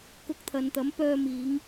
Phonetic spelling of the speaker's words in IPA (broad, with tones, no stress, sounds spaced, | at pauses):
k ʊ˧ k̚ t̪ʰ ɐ˨ n t̪ ɐ˨˥ m p œː˧ m iː˨˧ ŋ